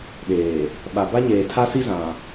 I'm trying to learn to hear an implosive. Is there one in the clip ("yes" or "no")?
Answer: yes